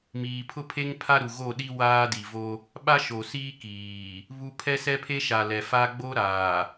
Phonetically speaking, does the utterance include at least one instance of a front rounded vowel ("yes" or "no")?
no